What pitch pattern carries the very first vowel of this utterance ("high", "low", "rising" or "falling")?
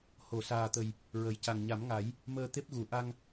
low